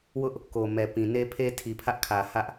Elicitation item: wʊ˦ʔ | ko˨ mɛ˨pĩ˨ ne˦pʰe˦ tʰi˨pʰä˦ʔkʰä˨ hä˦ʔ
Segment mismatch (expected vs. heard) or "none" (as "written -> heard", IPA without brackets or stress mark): none